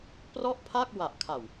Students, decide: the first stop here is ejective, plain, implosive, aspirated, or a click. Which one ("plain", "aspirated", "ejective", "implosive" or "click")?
plain